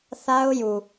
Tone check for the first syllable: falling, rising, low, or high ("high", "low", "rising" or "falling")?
high